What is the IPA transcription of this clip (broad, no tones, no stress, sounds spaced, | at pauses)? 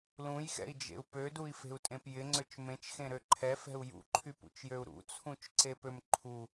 l ũ j x ɛ̰ i̯ d͡ʒ ḛ u̯ p ø d u i̯ f e̤ u̯ tʼ ẽ p j ɪ ŋ͡ǀ ø t͡ʃ m ẽ t͡ʃ x ẽ ɾ ø ǃʰ ɛ f ɛ̤ u̯ j ṵ ǃʰ y p ṵ t͡ʃ j ø u̯ ɾ ṵ t͡sʰ ũ t͡ʃ ǀ e p ø m ǃʰ u